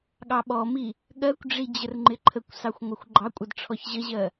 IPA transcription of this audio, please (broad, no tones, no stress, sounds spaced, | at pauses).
ɠ ɑ ɓ ɔ m i | ɠ ɜ kʷ ɖ͡ʐ i d͡ʑ ə r ŋ͡ǃ ɪ ǃʰ ə kʷ s ɑ xʷ ŋʷ ɑ xʷ ɡ͡ǃ ɑ kʷʼ ʌ d ʈ͡ʂʰ ɔ ç ʑ ə ʑ ɜ